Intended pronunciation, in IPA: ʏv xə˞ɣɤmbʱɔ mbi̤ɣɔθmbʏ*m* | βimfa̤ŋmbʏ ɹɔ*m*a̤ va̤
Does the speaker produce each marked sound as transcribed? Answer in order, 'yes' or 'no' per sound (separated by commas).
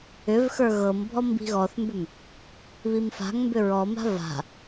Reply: yes, yes